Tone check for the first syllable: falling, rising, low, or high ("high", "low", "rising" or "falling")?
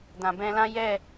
low